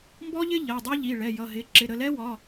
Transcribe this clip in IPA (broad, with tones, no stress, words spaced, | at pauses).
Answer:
mbɔ˦˥ʎɪ˦˥ ʎɜ˩˧˩dˤɑ˦˥ʎi˩˧˩ ɭɛ˩˧˩jʌ˩˧˩ɦɪ˩˧˩ ǁɪ˩˧˩ɾə˩˧˩lɛ˦˥ wɒ˩˧˩